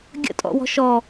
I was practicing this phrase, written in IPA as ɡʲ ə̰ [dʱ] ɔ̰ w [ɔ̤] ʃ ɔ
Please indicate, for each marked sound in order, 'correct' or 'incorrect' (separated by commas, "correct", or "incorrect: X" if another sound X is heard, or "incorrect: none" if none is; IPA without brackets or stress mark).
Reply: incorrect: tʼ, correct